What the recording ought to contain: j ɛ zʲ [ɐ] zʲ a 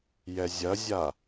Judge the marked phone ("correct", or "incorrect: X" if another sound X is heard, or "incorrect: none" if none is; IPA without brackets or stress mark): correct